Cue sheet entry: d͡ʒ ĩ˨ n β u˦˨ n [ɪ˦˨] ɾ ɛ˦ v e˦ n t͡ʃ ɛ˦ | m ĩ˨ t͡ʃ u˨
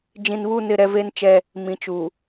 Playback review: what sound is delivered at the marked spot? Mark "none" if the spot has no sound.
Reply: ɪ˦˨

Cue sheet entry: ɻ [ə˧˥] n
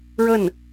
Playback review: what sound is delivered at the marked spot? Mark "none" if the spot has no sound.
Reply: ə˥˩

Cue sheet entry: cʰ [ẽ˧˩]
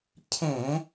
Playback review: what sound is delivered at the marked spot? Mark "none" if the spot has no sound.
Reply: ẽ˧˩˧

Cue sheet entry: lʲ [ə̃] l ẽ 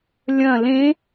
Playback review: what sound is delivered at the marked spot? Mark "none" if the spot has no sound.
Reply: ɐ̃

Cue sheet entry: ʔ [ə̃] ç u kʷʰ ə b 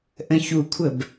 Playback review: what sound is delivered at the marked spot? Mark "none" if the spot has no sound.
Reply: ə̃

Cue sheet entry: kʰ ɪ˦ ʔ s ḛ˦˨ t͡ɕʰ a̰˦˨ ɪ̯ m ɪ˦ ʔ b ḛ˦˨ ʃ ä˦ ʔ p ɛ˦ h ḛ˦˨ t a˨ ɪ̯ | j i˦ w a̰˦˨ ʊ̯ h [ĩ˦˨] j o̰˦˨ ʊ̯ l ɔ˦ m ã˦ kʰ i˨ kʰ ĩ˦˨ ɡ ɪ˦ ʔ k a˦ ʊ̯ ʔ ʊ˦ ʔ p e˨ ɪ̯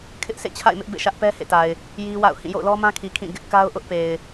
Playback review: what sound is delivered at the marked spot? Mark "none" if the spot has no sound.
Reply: ĩ˦˨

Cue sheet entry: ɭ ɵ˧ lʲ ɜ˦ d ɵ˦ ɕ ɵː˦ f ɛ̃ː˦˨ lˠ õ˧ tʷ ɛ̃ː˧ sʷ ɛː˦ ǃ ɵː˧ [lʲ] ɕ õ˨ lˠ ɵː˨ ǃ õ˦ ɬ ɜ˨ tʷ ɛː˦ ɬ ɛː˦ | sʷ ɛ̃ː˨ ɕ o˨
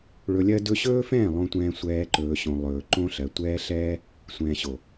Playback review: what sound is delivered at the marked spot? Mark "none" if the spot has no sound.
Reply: none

